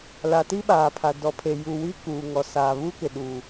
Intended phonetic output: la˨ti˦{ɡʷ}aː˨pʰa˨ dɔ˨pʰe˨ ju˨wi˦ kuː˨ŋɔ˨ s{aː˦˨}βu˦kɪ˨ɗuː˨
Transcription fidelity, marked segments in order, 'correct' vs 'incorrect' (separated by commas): incorrect, incorrect